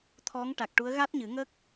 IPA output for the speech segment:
t̪ʰɔ˧˥ŋ ʈa˨˩k̚ʈu˧˥ə̯ ɣa˦˥t̚ɲɨ˨˩˦ŋə˦˥k̚

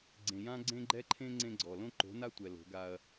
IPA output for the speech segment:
ɡ͡ǀẽ˨jã˦ ɡ͡ǀẽ˦ɡ͡ǃɛ˦ǃʰẽ˦ ŋ͡ǀẽ˦ɡ͡ǀɔ˨ lõ˦ǃo̤˨˦na˦tʷɛ˨ lo̤˨˦ɡa˦ɐ̯

